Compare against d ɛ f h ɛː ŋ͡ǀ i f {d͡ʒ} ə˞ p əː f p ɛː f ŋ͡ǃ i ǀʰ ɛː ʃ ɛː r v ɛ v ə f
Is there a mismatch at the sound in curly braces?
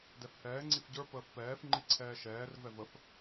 yes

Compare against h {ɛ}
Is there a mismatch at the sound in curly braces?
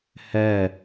no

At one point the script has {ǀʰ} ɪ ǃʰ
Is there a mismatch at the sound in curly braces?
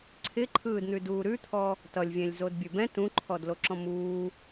no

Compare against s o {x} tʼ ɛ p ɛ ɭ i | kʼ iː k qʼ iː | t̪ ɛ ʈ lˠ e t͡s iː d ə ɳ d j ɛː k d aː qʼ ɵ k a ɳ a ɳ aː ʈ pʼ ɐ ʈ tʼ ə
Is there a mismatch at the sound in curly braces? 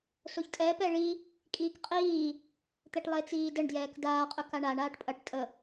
yes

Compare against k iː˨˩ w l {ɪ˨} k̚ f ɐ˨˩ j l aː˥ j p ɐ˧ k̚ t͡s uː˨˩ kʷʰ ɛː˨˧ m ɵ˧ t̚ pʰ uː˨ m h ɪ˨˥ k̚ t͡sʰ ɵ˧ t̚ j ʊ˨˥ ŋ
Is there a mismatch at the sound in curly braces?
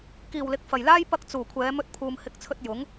no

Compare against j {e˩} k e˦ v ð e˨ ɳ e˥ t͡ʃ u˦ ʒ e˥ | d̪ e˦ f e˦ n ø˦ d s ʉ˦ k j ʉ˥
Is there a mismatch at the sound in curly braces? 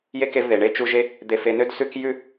yes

